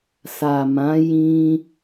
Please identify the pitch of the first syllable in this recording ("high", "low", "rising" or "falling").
low